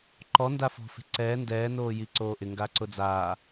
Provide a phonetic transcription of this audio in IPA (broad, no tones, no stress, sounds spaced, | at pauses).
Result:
ǃ ɔ n d a f ɔ̤ f e̤ ǀ ɛː n d ɛː n oː j i ǀ oː ʔ ɪ ŋ ɡ a ǀ ʊ d͡z aː